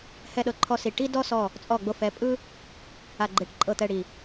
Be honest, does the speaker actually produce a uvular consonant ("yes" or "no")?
no